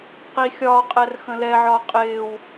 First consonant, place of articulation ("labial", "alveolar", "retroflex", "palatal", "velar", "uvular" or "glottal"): uvular